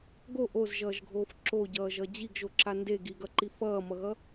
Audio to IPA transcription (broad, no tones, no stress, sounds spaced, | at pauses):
ɡ o ʔ o z ʒ ʌː ʒ ɡʱ oː f ǁ o ɟ ʌː ʒ ʌ d͡ʑ i ɡ ʒ o ǁ a n d e ɡ i ɡ ʌ ǃ i f ʌː m ʌ ɣ ʌ